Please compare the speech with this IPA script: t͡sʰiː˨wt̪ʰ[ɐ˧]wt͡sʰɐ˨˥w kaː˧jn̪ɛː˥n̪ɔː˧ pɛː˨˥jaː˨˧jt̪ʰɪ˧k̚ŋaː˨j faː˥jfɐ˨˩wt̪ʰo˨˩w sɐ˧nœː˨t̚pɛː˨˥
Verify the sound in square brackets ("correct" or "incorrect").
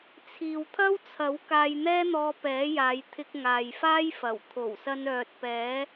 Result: incorrect